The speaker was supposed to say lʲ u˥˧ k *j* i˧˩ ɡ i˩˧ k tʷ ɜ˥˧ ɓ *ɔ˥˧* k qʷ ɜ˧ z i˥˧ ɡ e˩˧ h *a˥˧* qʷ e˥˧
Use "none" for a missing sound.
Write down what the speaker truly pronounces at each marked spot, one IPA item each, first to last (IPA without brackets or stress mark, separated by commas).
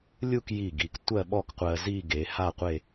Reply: j, ɔ˥˧, a˥˧